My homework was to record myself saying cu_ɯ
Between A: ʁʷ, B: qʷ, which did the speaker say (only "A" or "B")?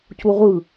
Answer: A